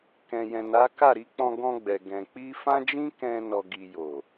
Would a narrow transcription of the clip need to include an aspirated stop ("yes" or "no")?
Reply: no